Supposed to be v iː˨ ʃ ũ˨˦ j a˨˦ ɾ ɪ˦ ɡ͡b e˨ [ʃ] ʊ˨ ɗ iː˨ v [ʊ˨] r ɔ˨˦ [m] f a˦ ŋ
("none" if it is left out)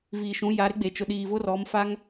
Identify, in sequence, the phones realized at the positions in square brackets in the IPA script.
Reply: t͡ʃ, ʊ˦, m

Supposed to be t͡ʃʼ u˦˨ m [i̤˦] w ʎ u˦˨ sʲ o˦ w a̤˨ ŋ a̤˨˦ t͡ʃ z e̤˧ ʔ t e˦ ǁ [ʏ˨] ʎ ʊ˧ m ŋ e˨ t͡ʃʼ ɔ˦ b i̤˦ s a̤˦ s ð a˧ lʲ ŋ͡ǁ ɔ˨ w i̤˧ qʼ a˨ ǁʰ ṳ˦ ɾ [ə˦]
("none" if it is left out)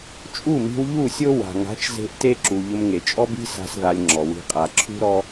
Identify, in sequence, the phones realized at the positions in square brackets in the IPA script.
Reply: i̤˧, u˨, ɔ˦

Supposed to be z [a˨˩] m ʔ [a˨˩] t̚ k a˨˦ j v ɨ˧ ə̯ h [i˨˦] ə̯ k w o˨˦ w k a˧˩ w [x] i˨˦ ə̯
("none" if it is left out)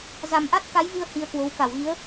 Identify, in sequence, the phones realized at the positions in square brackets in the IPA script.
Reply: a˨˩, a˦˥, i˧, ɣ

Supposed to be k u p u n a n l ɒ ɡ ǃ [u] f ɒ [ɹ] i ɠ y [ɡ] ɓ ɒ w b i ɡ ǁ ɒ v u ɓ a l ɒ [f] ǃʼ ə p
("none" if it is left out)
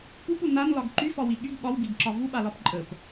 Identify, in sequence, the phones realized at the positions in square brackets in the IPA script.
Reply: y, w, ɡ, p

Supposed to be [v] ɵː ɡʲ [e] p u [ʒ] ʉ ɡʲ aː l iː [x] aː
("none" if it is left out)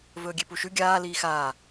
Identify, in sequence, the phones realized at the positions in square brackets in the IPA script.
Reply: v, e, ʃ, x

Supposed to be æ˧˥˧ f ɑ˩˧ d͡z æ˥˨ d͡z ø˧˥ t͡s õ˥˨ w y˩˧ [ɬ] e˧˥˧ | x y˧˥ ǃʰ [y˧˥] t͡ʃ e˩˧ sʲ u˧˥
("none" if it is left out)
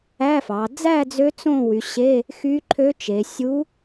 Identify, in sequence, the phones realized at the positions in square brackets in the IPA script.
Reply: ɕ, ø˧˥

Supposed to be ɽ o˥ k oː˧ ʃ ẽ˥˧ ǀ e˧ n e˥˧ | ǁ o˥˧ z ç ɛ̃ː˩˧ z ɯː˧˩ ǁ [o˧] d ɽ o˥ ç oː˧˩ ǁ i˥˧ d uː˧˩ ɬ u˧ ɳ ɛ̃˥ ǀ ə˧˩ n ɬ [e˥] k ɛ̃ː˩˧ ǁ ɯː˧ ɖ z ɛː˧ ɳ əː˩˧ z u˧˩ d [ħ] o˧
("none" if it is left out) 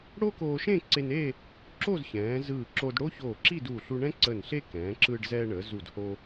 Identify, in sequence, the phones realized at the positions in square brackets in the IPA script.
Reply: o˧, e˥, h

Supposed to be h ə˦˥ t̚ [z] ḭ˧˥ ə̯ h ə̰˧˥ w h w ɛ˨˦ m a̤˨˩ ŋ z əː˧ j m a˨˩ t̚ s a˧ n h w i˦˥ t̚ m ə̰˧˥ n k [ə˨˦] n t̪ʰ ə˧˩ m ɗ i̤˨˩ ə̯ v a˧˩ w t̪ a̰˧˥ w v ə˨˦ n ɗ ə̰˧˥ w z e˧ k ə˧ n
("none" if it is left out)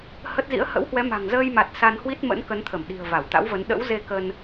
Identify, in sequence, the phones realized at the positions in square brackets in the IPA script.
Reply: z, ə˨˦

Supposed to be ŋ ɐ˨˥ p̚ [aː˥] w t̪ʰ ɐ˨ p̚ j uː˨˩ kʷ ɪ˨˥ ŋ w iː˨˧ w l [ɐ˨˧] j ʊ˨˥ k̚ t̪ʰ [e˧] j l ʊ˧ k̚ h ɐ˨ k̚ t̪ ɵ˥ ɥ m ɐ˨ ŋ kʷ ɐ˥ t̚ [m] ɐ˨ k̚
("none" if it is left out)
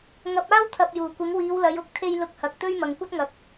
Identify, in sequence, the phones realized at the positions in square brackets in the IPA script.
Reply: aː˥, ɐ˨˧, e˧, ŋ

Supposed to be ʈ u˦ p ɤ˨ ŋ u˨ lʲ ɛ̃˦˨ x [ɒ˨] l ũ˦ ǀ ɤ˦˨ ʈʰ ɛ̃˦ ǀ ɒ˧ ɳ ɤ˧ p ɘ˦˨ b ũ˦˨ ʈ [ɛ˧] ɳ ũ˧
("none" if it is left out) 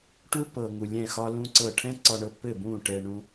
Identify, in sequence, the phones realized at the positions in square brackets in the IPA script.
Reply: ɒ˦, ɛ˧

